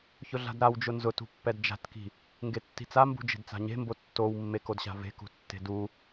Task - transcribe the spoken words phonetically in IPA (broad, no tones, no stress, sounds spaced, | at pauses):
ç ʊ ɮ a̤ d ɾ a w d͡ʒ ʊ n z ʊ t ṳ pː ɛ d d͡ʒ a̤ t k i̤ | ŋ ɡ e tː i̤ t͡s a m b ṳ d͡ʒ e̤ d t͡s a̤ ɲ e̤ m b o tː o w mː e k o d ɕ a̤ v e̤ k ṳ tː e̤ d u